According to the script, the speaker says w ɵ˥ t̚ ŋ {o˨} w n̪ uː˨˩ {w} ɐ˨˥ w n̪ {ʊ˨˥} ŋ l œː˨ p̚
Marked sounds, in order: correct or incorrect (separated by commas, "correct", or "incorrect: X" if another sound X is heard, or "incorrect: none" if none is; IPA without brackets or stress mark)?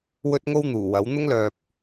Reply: incorrect: o˥, correct, incorrect: ʊ˥